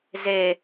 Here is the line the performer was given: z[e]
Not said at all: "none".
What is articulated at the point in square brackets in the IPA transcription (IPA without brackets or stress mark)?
e